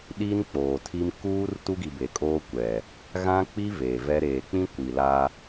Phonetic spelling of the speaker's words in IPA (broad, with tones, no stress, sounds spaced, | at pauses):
ɗ i˦ n k͡p oː˨ tʰ i˦ m k uː˦ r t u˦ ɡ i˨ b e˨ kʼ oː˦ kʷ ɛ˨ | ɣ ã˦ k͡p i˦ v eː˨ v ɛ˦ ɾ eː˨ k͡p ĩ˦ kʷ i˨ l a˦